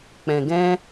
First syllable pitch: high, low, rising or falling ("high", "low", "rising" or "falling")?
low